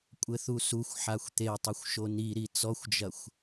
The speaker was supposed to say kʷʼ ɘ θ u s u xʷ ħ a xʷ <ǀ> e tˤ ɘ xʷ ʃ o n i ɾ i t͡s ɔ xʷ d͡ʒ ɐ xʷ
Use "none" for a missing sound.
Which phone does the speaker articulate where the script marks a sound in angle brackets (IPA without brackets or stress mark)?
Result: t̪